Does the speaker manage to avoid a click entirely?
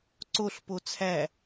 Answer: no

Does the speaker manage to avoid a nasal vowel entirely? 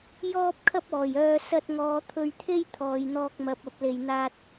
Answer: yes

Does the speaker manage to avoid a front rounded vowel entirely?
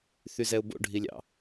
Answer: no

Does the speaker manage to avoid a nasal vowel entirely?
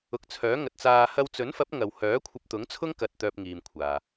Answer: yes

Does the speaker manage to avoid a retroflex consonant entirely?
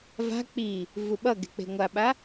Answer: yes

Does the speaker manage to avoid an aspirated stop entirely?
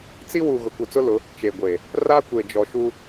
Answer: yes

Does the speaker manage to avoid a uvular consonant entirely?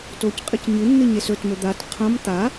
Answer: no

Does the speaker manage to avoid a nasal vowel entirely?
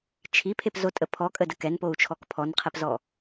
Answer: yes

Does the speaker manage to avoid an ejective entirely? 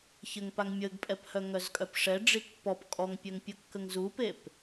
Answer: no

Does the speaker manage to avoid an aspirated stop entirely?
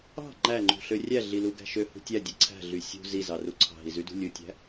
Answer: no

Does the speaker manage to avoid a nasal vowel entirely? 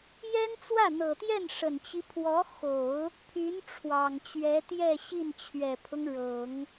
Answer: yes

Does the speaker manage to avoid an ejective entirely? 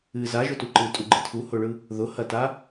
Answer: no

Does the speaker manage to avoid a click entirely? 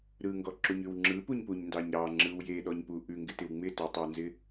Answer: no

